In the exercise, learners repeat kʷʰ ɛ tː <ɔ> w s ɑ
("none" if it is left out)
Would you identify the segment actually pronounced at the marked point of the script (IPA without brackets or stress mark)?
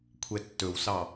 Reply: ɵ